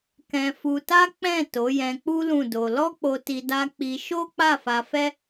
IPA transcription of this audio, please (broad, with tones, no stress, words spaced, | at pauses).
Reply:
kɛ̃˧fu˧ta˦ k͡pɛ̃˦˨ to˨˦jɛ̃˧k͡pu˦ lũ˦˨do˧ lɔ˦k͡po˧ti˧ da˦ k͡pi˧ ʃo˦k͡pa˦˨fa˧fɛ˦